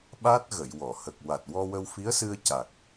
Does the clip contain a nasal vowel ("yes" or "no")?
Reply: no